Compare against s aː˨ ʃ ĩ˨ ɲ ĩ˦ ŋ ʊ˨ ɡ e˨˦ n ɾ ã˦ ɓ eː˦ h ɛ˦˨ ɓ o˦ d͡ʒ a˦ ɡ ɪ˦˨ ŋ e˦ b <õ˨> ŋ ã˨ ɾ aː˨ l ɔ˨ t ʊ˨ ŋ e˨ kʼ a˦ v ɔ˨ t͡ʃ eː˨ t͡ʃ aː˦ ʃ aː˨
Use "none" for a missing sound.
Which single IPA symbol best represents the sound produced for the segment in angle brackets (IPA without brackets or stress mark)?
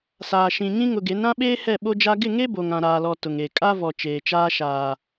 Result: o˨